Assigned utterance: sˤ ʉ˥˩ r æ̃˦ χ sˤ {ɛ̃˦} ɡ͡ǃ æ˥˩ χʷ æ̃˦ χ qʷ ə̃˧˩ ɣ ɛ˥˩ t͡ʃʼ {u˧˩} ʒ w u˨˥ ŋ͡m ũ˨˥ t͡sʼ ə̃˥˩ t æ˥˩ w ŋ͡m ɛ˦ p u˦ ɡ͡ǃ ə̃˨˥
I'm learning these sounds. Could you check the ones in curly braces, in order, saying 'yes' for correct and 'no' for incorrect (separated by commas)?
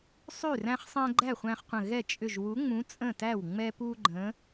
yes, no